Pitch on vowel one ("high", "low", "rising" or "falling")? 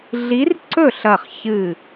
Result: rising